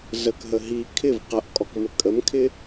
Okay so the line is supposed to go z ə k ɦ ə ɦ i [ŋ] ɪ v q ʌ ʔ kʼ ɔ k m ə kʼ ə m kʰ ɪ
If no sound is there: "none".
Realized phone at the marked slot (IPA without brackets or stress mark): kʰ